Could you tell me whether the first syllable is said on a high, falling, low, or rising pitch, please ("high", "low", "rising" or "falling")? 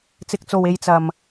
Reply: low